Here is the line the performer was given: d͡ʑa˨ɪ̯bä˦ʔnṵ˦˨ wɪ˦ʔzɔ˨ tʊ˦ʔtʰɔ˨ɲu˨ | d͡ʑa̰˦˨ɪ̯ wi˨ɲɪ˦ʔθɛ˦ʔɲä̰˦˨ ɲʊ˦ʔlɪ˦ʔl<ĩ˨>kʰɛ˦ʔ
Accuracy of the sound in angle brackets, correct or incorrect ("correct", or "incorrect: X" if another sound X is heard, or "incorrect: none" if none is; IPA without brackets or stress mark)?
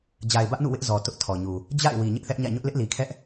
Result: incorrect: i˨